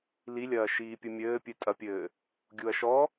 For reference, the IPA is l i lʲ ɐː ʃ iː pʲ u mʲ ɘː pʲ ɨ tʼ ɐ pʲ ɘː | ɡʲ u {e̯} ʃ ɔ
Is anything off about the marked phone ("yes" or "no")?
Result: yes